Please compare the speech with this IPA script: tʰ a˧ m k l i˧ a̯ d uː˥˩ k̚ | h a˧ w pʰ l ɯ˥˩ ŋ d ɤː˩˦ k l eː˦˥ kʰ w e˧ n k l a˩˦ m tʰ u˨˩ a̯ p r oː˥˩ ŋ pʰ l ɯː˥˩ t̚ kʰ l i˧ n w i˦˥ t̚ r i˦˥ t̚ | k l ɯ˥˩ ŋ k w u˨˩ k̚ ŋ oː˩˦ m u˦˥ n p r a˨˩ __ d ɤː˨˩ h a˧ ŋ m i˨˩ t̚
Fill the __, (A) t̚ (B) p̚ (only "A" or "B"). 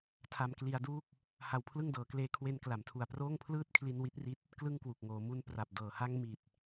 B